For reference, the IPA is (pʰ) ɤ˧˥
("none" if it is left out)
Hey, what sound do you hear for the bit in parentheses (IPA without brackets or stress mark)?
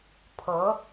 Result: pʰ